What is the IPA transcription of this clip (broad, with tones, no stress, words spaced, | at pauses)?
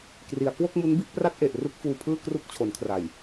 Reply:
kri˩˦a̯ kwo˥˩k̚mu˦˥nbi˥˩ʔ pra˥˩t̚ʔe˨˩ʔ ru˥˩k̚fuː˧pʰɯː˥˩ kru˦˥k̚t͡ɕʰo˩˦nkʰra˨˩j